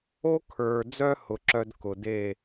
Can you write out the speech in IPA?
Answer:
o˦kʰə˞˨d͡zœ˦ hʊ˧ǁœ˦d kʊ˨ de˦˨

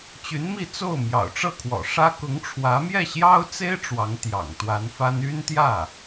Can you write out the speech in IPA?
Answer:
t͡ɕy˧˥nmi˥˧t͡so˥˩ʊ̯ mjɑ̰˨˩ʊ̯ʈ͡ʂɤ˥˩kʰwɔ̰˨˩ʂä˥ kʊ˧˥ŋʈ͡ʂʰwä˧˥ mjɛ˥˩ɕjɑ˥ʊ̯t͡se˥ɪ̯ ʈ͡ʂwɑ˧˥ŋt̪jɑ̰˨˩ŋt̪wa˧˥nfa˥n y˥nt̪jä˥˩

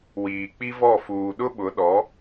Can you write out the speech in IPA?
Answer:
wiː˨k͡pi˦vɔ˦˨ fuː˨ɗʊ˦ɓʊ˨˦ ɗɔ˨˦

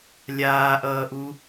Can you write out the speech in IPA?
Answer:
lʲaːʔʌːʔu

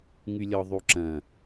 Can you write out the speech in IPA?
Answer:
ŋylʲɔðˤuǁɐ̃

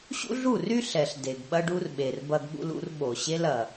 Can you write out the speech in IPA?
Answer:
ɕṵ˦ɮu˦˨ry˦ ɬɛ˨ɬ de˨ɡ ɓɐ˦ɖu˦rɓe˨r bɐ˦ɡɓṵ˦lṵ˦r ɓo˨ ɕe˦l ɐ˨

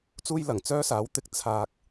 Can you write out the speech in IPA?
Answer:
t͡suː˥jlɐ˨˩ŋ t͡sœː˥saː˨˥wt̪ɪ˧k̚ t͡sʰaː˧k̚

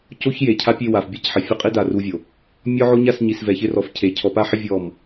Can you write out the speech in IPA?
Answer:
co˦çje˨cʰa˦pʲe˦˨ wa˨fbʲe˦cħɪ˨ fʲʊ˦qʼi˦ da˨ru˦vʲo˨ | mʲɔ˦ʕo˦ɲa˦˨sɲi˨s vɛ˨çɪ˦rɔ˨fcʰe˨ cʰɔ˨pa˦ħɪ˦ vʲɔ˦˨m

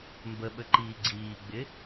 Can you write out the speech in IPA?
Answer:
mbəɓəǃiː ɡ͡ǀiːɡ͡bɪ

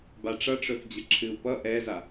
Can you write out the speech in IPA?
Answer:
baʈ͡ʂʌʈ͡ʂœfd͡ʑə ǁʰɨu̯pʌ ʔɛza

